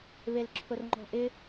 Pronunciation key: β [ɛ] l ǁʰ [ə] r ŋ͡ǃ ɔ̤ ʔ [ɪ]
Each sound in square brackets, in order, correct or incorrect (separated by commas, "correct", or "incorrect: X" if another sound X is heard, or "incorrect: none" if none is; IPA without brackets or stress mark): incorrect: e, incorrect: ʊ, correct